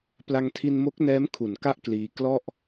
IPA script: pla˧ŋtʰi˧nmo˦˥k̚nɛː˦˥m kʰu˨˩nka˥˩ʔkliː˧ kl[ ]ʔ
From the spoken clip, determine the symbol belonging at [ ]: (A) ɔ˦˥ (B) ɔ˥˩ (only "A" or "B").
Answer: B